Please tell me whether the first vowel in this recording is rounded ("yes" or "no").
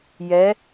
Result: no